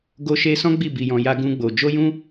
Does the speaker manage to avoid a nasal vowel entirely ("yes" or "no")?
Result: no